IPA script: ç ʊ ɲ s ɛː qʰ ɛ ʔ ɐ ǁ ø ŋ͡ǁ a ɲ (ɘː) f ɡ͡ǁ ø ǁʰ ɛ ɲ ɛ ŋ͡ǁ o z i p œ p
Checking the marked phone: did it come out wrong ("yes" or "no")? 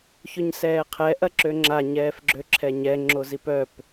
yes